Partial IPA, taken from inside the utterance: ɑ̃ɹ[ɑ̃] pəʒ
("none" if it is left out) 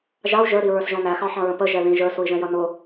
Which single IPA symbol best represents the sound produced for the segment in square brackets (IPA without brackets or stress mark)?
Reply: ə̃